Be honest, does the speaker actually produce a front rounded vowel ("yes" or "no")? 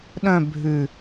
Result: yes